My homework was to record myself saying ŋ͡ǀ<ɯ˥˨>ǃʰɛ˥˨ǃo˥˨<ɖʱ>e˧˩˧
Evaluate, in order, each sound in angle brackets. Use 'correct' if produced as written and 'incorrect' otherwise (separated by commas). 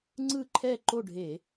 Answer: correct, correct